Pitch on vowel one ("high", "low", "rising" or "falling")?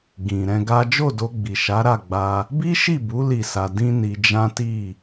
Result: low